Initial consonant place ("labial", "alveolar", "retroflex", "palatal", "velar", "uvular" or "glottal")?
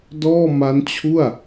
alveolar